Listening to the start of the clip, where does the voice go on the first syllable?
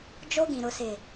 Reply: high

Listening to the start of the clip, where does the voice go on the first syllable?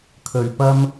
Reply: low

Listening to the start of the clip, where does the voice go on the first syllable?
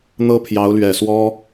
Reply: high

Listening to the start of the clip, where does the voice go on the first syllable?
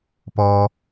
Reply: high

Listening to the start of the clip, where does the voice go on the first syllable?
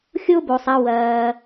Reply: high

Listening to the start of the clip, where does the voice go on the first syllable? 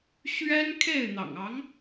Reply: high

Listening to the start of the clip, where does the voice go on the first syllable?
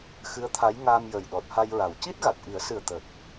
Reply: rising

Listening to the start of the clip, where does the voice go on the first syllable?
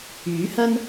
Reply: rising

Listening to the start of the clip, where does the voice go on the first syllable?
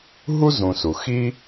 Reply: high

